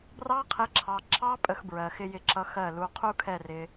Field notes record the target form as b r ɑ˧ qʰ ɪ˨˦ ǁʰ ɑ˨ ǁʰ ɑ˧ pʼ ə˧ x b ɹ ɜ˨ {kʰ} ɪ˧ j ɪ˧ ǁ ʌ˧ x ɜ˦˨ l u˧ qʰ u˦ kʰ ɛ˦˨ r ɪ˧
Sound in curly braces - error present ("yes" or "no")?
yes